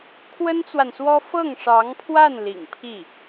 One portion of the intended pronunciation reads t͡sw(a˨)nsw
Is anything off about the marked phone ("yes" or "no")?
no